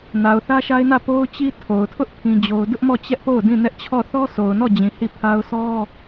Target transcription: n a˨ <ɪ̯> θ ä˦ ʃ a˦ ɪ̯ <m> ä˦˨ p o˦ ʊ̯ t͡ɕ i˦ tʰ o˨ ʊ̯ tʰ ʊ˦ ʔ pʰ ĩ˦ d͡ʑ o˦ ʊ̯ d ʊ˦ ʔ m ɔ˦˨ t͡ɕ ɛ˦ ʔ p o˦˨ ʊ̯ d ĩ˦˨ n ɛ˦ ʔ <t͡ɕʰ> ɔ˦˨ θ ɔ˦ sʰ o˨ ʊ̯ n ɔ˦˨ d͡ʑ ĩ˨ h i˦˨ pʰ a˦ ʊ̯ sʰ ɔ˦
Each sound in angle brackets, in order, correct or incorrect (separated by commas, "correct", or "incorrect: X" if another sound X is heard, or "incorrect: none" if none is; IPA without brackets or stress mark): incorrect: ʊ̯, incorrect: n, correct